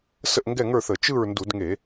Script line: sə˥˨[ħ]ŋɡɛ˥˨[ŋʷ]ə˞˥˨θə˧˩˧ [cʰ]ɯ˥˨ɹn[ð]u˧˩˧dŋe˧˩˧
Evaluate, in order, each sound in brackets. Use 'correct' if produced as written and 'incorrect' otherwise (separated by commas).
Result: incorrect, incorrect, incorrect, incorrect